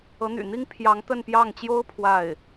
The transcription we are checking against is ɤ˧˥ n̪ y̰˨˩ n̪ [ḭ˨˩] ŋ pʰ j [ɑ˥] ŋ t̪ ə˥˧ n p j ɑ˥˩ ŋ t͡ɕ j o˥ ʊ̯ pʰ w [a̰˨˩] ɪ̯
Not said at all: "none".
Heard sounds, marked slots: i˥, ɑ˧˥, a˥˩

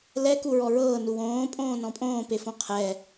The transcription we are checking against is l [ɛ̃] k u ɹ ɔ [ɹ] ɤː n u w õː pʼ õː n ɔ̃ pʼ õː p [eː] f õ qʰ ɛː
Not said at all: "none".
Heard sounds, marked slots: ɛ, ɹ, e

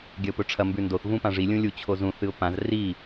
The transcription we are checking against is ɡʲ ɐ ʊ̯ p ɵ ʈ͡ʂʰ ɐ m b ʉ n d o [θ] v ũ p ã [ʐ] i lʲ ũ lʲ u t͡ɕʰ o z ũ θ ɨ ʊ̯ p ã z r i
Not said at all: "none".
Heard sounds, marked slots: θ, ʐ

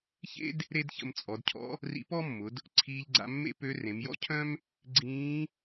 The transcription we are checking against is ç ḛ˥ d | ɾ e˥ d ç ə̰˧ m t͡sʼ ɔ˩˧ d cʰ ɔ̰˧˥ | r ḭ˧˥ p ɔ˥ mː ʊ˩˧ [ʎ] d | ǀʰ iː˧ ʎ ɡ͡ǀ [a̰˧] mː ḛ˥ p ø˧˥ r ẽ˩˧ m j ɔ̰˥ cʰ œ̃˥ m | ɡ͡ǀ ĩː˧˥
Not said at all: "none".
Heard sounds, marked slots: none, a̰˧

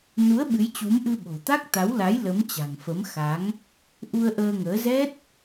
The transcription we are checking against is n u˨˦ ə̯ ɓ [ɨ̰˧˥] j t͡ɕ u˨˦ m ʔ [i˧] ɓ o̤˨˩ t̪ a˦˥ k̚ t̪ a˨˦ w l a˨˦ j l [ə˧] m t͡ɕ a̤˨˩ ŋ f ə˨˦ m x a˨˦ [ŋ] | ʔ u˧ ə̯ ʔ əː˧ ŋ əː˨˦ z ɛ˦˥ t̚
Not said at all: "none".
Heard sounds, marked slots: ɨ˨˦, ɨ˧, ə˨˦, ŋ

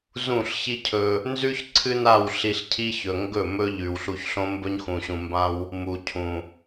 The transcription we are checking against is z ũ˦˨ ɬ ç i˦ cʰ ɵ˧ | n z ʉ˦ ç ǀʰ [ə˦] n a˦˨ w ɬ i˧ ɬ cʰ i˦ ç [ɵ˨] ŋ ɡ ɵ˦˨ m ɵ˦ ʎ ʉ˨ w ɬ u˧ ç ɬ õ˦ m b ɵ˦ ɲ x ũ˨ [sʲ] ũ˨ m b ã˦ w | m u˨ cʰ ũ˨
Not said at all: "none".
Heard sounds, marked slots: ɨ˦, ɵ˨, ɕ

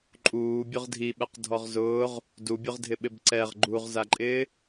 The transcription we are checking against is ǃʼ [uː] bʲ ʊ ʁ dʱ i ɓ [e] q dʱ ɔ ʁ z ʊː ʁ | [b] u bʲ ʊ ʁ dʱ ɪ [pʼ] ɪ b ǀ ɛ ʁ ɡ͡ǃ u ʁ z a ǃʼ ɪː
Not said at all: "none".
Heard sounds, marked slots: uː, ɛ, d, ɓ

